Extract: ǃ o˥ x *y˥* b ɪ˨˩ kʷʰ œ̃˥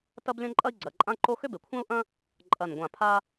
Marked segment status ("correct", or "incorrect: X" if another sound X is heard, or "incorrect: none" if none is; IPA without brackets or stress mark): incorrect: ʏ˥